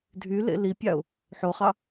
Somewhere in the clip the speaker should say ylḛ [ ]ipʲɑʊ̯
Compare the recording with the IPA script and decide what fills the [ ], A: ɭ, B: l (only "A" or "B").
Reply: B